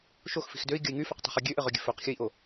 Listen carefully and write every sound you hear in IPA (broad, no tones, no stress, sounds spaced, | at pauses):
ʃ o x f i̤ x d ø i̯ ɡʲ ə i̯ ŋ y f ə˞ q tˤ i̤ χ y ɡʲ ø ʔ ɘ ʁ ø ɡʲ ɘ f ø q xʲ ə i̯ ʔ o